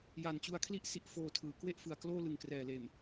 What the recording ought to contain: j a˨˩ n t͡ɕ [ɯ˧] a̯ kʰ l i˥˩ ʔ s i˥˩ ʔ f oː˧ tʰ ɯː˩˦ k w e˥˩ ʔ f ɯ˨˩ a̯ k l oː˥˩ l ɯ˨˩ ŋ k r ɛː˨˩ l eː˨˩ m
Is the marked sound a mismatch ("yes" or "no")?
yes